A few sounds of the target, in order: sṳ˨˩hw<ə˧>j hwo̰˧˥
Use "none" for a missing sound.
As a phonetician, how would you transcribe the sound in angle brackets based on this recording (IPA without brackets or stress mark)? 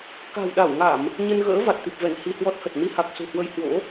ə˧